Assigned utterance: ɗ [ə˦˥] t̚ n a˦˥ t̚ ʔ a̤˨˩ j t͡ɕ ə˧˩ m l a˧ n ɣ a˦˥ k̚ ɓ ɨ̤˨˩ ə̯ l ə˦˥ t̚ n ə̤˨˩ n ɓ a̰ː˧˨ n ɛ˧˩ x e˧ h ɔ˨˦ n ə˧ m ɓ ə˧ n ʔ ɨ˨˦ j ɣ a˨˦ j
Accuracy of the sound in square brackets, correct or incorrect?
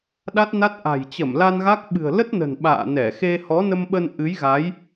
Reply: incorrect: a˦˥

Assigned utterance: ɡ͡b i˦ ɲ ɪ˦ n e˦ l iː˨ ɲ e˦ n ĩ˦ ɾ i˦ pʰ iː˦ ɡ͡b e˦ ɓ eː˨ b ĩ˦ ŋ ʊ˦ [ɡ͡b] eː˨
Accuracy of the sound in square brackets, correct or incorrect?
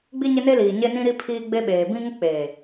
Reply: incorrect: k͡p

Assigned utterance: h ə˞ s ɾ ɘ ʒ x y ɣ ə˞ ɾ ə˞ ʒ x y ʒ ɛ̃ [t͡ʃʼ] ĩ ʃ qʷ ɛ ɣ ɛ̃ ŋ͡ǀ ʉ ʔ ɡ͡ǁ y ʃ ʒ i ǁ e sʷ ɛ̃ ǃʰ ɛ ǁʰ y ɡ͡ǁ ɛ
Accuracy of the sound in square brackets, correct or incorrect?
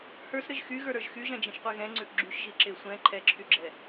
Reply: incorrect: d͡ʒ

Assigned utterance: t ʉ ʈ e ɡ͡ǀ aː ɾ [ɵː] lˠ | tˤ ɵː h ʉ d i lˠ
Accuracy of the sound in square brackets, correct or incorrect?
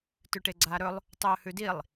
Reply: incorrect: ɵ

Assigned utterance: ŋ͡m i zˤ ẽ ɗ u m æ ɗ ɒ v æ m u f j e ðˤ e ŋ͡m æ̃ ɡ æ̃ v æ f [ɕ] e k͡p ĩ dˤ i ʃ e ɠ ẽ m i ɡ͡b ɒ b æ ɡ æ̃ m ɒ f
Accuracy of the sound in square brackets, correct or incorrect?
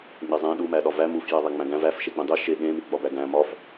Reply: incorrect: ʃ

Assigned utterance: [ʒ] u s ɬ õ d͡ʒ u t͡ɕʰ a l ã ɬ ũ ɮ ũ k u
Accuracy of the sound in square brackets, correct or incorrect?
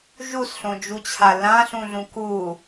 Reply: correct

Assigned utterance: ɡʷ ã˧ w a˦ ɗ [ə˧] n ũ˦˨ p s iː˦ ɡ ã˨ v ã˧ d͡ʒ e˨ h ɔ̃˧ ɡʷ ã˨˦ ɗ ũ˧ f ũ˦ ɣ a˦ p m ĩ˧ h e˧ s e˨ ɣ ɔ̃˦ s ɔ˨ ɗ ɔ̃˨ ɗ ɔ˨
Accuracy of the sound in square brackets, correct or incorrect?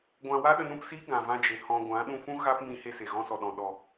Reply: correct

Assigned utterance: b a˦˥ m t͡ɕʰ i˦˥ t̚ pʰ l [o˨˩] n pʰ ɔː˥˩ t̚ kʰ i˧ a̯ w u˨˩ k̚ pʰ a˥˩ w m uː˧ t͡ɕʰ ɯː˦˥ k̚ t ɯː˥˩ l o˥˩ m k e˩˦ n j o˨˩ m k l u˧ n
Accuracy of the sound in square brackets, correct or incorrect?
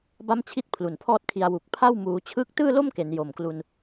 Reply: incorrect: u˨˩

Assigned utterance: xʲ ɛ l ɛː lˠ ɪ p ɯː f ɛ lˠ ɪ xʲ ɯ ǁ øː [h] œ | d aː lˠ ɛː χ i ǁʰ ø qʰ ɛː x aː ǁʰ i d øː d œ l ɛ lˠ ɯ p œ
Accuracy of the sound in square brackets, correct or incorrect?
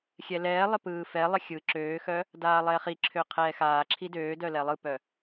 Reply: incorrect: x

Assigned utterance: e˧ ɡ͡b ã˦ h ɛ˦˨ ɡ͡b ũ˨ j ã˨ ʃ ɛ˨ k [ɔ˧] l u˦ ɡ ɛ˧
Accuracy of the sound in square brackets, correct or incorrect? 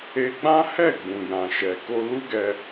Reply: incorrect: o˧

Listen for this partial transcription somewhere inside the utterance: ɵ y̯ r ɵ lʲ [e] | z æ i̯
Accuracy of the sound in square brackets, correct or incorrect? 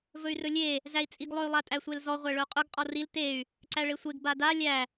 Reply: correct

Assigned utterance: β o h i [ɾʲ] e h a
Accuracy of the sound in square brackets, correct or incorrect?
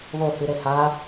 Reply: incorrect: ɾ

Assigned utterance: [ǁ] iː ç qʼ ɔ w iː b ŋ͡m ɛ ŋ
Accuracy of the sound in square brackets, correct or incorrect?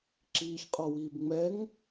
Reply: correct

